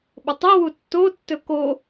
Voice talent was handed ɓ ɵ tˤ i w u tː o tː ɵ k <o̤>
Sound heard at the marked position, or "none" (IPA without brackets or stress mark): o